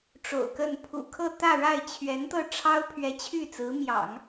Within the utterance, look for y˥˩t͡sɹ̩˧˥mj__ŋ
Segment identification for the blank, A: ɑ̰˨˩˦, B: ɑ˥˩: A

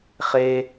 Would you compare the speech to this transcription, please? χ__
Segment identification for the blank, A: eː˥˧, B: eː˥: B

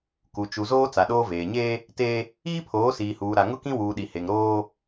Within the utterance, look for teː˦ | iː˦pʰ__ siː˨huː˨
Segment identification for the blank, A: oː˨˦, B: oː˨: A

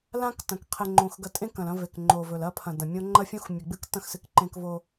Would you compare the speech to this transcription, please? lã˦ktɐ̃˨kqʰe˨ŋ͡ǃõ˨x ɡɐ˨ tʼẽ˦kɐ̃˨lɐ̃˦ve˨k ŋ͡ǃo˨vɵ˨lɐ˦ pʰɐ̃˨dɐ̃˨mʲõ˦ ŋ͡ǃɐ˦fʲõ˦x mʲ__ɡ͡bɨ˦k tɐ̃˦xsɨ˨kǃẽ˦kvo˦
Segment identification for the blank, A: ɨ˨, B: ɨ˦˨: A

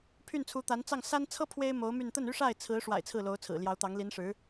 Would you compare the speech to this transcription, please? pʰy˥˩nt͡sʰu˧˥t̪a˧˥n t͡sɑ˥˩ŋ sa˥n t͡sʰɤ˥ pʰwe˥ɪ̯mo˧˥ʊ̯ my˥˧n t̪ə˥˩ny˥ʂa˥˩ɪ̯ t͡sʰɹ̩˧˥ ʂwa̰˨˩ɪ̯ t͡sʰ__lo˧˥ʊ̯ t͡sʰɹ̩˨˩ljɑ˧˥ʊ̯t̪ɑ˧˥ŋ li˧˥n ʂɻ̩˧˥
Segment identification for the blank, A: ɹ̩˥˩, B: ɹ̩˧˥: A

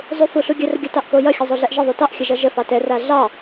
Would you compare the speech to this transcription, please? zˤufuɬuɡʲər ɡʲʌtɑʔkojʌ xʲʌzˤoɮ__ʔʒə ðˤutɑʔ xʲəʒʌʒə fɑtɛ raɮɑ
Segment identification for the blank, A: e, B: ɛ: B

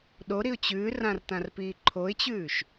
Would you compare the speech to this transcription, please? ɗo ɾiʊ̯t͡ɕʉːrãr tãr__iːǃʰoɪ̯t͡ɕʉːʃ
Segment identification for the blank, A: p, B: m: A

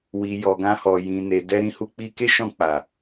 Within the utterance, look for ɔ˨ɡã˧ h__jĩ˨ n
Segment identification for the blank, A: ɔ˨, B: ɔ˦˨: A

